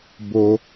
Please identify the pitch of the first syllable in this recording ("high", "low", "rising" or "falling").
low